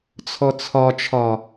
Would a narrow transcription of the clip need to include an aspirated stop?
yes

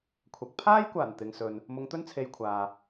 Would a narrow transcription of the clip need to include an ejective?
no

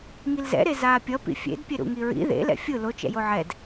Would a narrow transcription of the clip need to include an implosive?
no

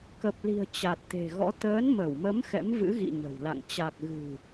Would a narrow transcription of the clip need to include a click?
no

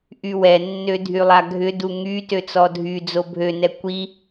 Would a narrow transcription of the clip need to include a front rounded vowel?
yes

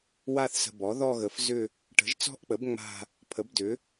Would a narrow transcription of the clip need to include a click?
no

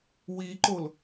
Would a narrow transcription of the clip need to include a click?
yes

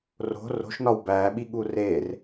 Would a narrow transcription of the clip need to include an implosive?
yes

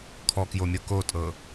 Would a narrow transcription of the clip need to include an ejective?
yes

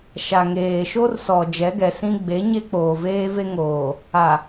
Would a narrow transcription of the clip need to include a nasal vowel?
yes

